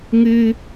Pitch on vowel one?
high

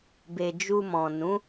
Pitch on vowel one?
low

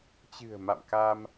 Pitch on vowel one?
low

